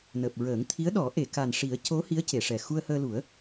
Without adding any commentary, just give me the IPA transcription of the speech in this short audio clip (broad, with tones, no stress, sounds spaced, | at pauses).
n əː˨˩ p̚ ɹ əː˨˩˦ ŋ t̪ʰ i˧˥ ə̯ ɗ ɔ˨˩˦ ʔ e˨˩˨ k a˨˩ n ʂ i˨˩˦ ə̯ c o˧˥ h i˧˥ ə̯ c e˨˩˨ ʂ ɛ˨˩ x u˧ ə̯ h əː˧ l u˨˩˦ ə̯